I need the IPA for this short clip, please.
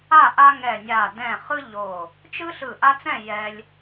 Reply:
a˥˨ ʔ a˦ ŋ ɛ˧˩ nʲ a˧˩ d ɛ̃˧˩ χ ɯ˦ ʎ o˧˩ | t͡ʃ ɯ˦ ɬ ɯ˧˩ ʔ a˦ t͡s ɛ̃˥˨ j ɛ˦ lʲ

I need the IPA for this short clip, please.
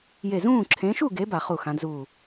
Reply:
j e˧˩ z ũː˥˨ ǁʰ ẽ˨˦ ʃ u˥˨ ɡ e˨˦ b a˧˩˧ χ u˧˩ x ã˨˦ d z uː˧˩

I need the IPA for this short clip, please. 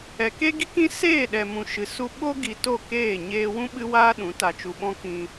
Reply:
ɛ˨ k e˦ ɡ i˦ k ĩ˦ s eː˦˨ ɗ ɛ˨ m ũ˨ ʃ ɨ˨ s u˧ ɓ o˦ ɡ i˧ t o˦˨ k eː˦˨ ɲ eː˦ w ũ˦ ɓ ɨ˦ w aː˦ ɗ ũ˨˦ t a˧ t͡ʃ u˧ ɓ ɔ̃˦ k ĩ˧

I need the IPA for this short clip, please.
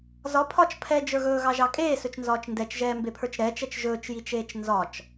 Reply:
z ɒ pʰ ɒ t͡ʃ pʰ ɛ d͡ʒ ə˞ ɣ ɵː ɣ ɑ ʒ ɑ kʼ eː s ɵ t͡ʃ n z ɒː t͡ʃ n d ɛ t͡ʃ ʒ ɛː m b e pʰ ə˞ t͡ʃ ɾ ɛ t͡ʃ ɛ t͡ʃ ʒ ɵː t͡ʃ j i t͡ʃ eː t͡ʃ n z ɒ t͡ʃ

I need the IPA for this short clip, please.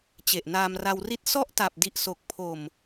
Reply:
t͡ɕ e˨˩ ʔ n aː˧ m r a˧ w r i˥˩ t̚ s ɔ˦˥ ʔ t a˨˩ p̚ d i˨˩ ʔ s o˨˩ k̚ pʰ o˨˩ m

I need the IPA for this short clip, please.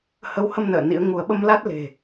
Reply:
h ə˨˦ w h ə˧ m n ə̰ː˧˨ n ḭ˧˥ ə̯ ŋ u˧ ə̯ ɓ ə˧ m l a˦˥ t̚ l e̤˨˩

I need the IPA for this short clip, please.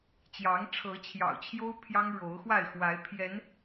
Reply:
t͡ɕ j ɑ˨˦ ŋ ʈ͡ʂʰ ɤ˨˦ t͡ɕʰ j ɑ̰˨˩ ʊ̯ t͡ɕʰ j o˦ ʊ̯ pʰ j ɑ˦ ŋ ɻ o˨˦ ʊ̯ x w a˥˨ ɪ̯ x w a˨˦ ɪ̯ pʰ j ɛ˨˦ n

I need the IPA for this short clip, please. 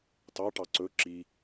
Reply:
t ɑ ʈ ɑ ǀ ɵ ǁ i

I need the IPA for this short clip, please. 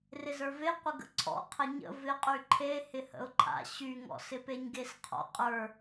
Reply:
r ɪ z ə˞ v e qʷ ɪ ɡ ə̰ ǀʰ ɔ̰ qʰ ə ɲ ə̰ v ɪ qʼ y ǃʰ e h ɪ h ə̰ ʊ̯ ǃʰ a̰ ɕ y ŋ ɔ̰ s ɪ p e ɲ ɡ e s qʰ ɔ̰ qʼ ə˞

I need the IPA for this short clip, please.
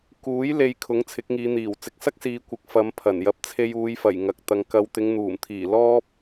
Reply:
k uː˨˥ j l e˨˧ j kʰ ʊ˨˥ ŋ t͡sʰ ɪ˨˥ k̚ ŋ iː˨˧ n̪ iː˨˩ w t͡s ɪ˨˥ k̚ s ɐ˥ k̚ s iː˨˧ kʷ ɪ˨ k̚ f ɐ˨˧ m pʰ ɐ˨˩ n j ɐ˨ p̚ t͡sʰ e˧ j uː˨˧ j f ɐ˨˩ j ŋ ɐ˨ k̚ t̪ ɐ˨˧ ŋ k ɐ˨˧ w t̪ ɪ˨˧ ŋ n̪ uː˨˩ m t̪ʰ iː˨˩ l ɔː˥ p̚

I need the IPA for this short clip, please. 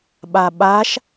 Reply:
ɓ a ɓ a ʃ

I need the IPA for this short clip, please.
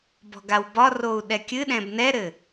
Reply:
b ɔ̤ ɡ a w b ɒ r o u̯ ɗ ɛ kʲ ɨ ɗ ɛ̃ b n ɛ ɾ ɘ

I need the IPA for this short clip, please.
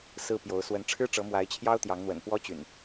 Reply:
s ɹ̩˦ p j o˨˦ ʊ̯ s w ə˨˦ n ʈ͡ʂʰ ɻ̩˦ ʈ͡ʂ ɤ˨˦ m w a˨˦ ɪ̯ t͡ɕʰ j ɑ˦ ʊ̯ t̪ j ɑ˨˦ ŋ n̪ w ə̰˨˩ n p w ɔ˦ t͡ɕ y̰˨˩ n

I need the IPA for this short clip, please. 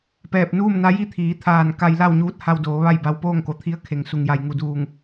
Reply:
p ɛː˧˩ p̚ n uː˥˨ m n a˧˥ j i˥˨ t̪ʰ iː˩˧ t̪ʰ aː˧˩ n k a˧ j l a˥˨ w ɲ uː˧˥ t̚ h a˧ w d oː˩˧ ʋ a˥˨ j b a˧ w p oː˥˨ ŋ k o˩˧ t̪ʰ i˧˥ ə̯ kʰ e˩ ŋ s u˩ ŋ j a˩ j ŋ u˩ d uː˧˩ ŋ

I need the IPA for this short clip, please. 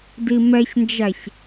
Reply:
d i m ɛ ç n d͡ʒ æ ç

